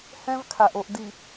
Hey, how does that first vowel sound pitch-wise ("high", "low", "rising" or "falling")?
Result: high